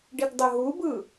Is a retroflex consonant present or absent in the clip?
present